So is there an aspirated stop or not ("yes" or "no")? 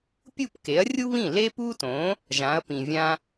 no